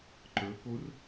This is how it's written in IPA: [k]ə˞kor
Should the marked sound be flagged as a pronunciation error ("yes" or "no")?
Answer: yes